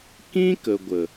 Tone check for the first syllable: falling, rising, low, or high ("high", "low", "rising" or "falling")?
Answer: high